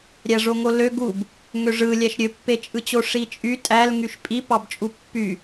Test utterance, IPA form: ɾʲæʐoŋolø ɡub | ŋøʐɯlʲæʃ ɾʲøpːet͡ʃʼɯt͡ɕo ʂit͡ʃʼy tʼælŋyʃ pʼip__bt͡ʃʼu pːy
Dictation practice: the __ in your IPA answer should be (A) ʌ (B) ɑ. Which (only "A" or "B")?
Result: B